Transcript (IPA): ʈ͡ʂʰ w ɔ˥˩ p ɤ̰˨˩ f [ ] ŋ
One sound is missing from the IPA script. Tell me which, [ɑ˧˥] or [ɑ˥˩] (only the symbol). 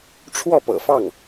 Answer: ɑ˥˩